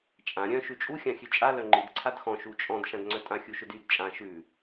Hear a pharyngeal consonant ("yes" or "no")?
no